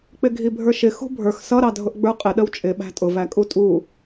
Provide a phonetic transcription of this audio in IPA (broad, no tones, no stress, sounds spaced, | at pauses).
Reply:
k͡p ɪ ɡʱ i bʱ ə˞ ʃ ɪ x ṳ bʱ ə˞ x s ʌ ɾ ɑ dʱ ʊ ʔ ɡ͡b ə˞ qʼ ɪ ɗ ə w t͡ʃʼ ɪ ɓ æ̤ tʼ ʊ v æ kʼ u tʼ u